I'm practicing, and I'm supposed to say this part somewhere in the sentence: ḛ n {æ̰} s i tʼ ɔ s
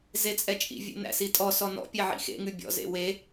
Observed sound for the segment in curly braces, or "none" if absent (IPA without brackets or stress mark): æ̰